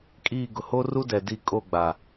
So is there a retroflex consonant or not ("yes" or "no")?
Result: no